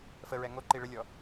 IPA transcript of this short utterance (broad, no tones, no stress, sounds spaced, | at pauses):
f ə ɹ ɛ ŋ o ǃ i ɭ ə lʲ ɔ